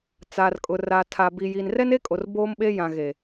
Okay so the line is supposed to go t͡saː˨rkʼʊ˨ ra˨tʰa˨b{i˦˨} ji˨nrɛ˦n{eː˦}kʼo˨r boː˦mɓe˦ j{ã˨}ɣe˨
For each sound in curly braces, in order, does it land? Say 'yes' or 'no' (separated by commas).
no, no, yes